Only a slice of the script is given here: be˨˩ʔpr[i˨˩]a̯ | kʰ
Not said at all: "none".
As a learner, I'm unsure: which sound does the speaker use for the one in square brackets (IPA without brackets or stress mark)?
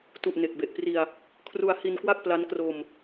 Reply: i˧